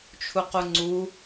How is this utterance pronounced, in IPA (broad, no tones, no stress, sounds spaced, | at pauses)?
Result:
t͡ʃʰ u q u ŋ͡ǀ u